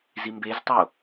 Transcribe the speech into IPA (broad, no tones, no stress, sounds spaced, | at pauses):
z i m b e z tˤ o